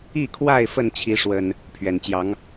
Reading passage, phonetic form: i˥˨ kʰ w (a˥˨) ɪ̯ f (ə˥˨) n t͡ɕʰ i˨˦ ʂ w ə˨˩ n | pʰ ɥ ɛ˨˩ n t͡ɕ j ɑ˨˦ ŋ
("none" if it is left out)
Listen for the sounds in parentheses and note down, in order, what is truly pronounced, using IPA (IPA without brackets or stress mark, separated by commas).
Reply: a˥˨, ə˥˨